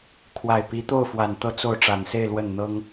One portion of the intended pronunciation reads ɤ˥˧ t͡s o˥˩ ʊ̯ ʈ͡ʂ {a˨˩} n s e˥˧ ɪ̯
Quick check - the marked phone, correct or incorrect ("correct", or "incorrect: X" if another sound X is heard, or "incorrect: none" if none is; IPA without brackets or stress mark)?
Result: correct